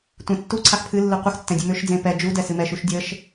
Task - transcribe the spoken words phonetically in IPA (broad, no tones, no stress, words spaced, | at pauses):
tʷẽtːu ǀʰaxpʰɨ lːɨqʷəx tːɛ̃dʲɨmøʃ d͡zẽpɛ d͡ʒu dɛsɨmɛʃ uʃdʲəʃ